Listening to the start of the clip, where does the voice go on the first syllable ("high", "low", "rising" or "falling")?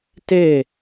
falling